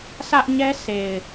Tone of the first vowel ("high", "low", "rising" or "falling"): high